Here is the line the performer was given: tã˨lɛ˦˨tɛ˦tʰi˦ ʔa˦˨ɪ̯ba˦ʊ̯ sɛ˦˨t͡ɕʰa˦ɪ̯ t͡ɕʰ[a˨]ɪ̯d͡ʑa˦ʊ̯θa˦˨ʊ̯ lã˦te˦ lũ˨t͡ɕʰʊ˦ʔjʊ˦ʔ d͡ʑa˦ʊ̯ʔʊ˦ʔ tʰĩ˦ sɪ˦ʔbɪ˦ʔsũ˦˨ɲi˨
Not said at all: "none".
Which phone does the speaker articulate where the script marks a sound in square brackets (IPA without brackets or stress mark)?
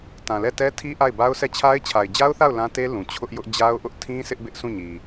a˨